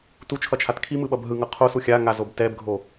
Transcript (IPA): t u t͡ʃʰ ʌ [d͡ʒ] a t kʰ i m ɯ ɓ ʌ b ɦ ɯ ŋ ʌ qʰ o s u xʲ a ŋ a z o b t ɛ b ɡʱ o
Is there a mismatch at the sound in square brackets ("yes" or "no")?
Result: yes